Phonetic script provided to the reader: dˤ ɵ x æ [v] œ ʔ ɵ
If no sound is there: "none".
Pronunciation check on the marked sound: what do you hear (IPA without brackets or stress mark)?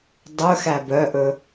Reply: b